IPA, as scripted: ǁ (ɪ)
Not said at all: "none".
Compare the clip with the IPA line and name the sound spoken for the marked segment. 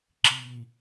i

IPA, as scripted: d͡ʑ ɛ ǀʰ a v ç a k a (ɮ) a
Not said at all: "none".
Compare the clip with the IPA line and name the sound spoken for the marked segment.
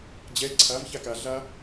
ɮ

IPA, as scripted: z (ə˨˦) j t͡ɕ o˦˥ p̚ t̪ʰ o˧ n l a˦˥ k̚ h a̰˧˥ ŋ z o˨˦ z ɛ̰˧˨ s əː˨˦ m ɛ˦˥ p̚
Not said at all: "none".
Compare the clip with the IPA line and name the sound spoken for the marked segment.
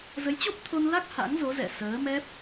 ə˨˦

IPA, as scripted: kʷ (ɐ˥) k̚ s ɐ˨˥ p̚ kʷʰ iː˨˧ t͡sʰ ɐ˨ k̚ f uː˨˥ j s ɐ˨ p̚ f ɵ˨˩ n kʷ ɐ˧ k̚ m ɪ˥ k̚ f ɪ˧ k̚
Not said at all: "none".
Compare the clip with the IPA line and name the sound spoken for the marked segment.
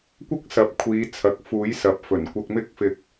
ɐ˥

